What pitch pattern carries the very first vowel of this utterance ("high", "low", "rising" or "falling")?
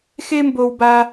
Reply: high